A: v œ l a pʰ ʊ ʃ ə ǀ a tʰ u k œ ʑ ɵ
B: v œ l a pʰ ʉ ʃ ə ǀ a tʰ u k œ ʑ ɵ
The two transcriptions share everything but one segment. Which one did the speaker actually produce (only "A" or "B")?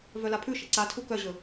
B